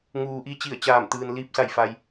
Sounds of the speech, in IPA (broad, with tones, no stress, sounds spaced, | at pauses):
ŋ uː˩ ʔ i˧ t͡ɕ i˧˩ ə̯ t͡ɕ aː˧˩ m t̪ ɯː˩ n l iː˧ p̚ s a˧˩ j f a˩ j